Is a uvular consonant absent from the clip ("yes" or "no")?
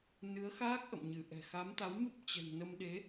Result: yes